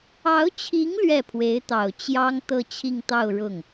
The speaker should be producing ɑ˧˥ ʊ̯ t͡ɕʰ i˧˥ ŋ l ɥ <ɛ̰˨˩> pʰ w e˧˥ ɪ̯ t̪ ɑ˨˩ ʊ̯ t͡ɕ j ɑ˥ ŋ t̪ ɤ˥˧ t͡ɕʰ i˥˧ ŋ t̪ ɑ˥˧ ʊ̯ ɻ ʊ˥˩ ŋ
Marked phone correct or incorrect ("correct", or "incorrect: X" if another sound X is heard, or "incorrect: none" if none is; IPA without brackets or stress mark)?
incorrect: ɛ˥˩